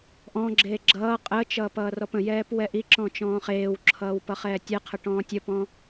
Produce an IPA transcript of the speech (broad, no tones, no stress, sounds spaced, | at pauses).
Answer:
ʔ ɔ̃ ɡ͡ǁ eː ɡ͡ǁ ʌː qʼ əː t͡ʃ ʌː p ʌː r ɔ p ə̃ j ɛː p w ɛ ʔ i ǁ ɔ̃ t͡ʃ ɔ̃ː χ eː w ǁʰ ʌː w p ʌ χ ɛː tʲ ɛ qʰ ə ʈ ɔ̃ː tʲ ə p ɔ̃